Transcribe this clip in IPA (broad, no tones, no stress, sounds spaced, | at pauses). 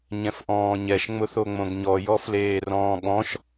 ɲ ɛ̃ f ʔ ɔ̃ː ɲ ɛ ʃ ŋ͡m ʊ θ o ŋ͡m õ ɡ ɲ ɔ j ɔ f l eː r ɔ̃ː ɠ ɔ̃ ʃ